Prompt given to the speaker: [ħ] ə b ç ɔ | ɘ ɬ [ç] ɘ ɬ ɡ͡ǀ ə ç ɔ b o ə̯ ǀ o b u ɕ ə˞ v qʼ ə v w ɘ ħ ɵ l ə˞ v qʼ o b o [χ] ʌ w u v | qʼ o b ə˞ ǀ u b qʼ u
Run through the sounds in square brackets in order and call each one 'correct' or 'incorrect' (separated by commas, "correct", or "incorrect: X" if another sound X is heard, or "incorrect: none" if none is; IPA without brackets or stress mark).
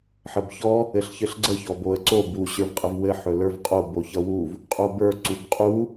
correct, correct, incorrect: ç